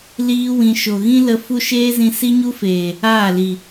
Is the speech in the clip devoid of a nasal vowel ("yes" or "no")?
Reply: no